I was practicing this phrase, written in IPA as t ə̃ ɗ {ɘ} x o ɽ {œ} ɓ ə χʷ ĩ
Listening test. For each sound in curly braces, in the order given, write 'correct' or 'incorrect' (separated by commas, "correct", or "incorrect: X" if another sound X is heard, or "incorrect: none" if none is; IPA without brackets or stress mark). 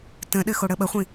correct, incorrect: ə